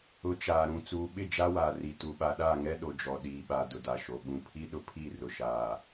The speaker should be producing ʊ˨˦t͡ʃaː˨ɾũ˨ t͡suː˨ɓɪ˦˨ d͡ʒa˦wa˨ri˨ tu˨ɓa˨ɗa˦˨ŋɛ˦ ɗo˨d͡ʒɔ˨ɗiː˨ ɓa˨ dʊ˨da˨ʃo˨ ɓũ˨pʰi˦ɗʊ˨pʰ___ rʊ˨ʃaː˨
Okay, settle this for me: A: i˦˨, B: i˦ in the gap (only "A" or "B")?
A